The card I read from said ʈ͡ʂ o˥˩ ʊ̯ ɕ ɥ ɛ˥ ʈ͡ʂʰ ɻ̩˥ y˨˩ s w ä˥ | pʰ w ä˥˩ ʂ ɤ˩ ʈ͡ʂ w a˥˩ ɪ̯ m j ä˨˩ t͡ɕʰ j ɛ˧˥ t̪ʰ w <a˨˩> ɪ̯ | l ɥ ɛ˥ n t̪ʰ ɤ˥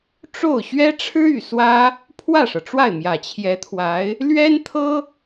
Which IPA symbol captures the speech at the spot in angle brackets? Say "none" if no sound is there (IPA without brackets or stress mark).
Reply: a˧˥